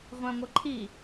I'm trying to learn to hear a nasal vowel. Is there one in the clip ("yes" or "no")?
yes